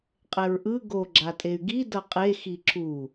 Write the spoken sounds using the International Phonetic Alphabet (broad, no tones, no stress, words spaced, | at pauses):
qʼɛɹʔɯ ɡo ɡ͡ǁatʼey̯ɡi dʌqʼe xiǁu